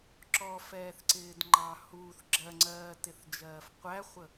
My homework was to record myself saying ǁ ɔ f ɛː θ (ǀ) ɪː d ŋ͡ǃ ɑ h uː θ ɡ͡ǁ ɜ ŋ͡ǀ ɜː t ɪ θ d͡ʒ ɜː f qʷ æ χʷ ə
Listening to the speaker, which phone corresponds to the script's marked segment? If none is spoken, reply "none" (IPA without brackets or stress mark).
ǀ